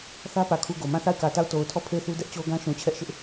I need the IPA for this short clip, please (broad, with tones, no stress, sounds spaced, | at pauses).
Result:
θ ä˦ p ä˨ kʰ u˦˨ ɡ o˨ m ã˦˨ θ a˦˨ ɪ̯ k ä˨ t a˦˨ ʊ̯ t o˨ ʊ̯ tʰ ɔ˦˨ pʰ e˦˨ ɪ̯ θ u˦ d ɛ˦ ʔ t͡ɕ o˦ ɡ ã˦ ʃ ũ˨ t͡ɕʰ ɛ˦ ʔ ʃ ɪ˦ ʔ